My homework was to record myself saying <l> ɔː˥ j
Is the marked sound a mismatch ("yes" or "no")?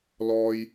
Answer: no